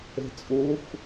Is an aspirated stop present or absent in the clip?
absent